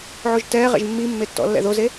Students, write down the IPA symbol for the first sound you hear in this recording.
ʕ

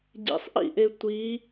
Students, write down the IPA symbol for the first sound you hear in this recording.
ɟ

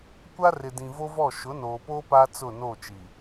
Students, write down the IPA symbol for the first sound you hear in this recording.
kʷ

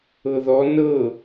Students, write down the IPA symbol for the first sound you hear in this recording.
ɤ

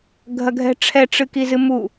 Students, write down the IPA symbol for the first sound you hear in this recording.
ɡʱ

